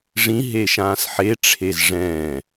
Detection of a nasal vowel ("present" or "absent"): present